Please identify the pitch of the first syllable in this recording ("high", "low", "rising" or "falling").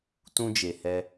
high